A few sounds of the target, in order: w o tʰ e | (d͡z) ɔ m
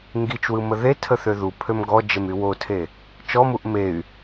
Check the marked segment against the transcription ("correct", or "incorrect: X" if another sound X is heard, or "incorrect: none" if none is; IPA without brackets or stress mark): incorrect: t͡ʃ